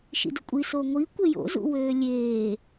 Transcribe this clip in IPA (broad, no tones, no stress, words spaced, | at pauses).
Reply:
ʃḭdʊkʷʼi soŋʷi kʷejo̰zṵ wøːlʲeː